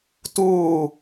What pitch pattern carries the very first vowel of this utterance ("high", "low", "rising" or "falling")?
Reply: falling